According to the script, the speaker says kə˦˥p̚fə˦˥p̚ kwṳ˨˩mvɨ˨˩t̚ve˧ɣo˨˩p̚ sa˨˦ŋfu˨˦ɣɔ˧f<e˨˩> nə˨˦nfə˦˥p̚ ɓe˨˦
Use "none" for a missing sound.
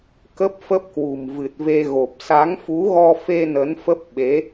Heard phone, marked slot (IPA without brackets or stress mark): e˧